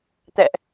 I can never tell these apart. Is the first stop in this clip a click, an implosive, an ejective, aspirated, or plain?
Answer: plain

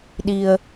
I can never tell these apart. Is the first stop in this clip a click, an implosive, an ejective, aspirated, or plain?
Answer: implosive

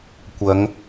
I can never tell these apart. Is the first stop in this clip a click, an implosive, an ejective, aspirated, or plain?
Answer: plain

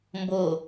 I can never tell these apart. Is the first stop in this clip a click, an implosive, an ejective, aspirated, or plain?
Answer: plain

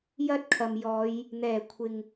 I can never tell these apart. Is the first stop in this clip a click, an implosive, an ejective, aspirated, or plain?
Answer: plain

